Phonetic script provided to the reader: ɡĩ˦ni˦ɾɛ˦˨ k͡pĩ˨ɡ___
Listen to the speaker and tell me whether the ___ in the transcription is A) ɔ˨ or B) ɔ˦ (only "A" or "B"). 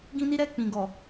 A